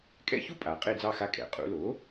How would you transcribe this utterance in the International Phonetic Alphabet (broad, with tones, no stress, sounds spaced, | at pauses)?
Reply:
kʼ ɛ̰˧˥˧ ç u˥ pʼ a˩˧ qʼ e˦˨ d͡z ɑ˦˨ x a˦˨ kʼ ɛ̰˩ qʼ ṵ˩˧ l o˩˥